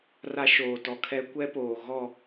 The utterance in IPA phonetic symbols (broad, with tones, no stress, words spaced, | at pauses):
ra˦ʃoː˨tɔ˨ kʰɛ˦ kʷɛ˦poː˨ ɣɔ˦˨